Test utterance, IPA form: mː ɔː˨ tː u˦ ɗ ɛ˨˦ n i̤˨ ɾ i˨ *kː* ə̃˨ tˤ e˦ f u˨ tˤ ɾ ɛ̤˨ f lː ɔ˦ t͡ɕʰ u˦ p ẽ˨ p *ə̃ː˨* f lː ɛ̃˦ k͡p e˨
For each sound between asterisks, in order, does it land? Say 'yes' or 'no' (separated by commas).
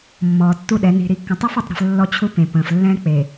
yes, yes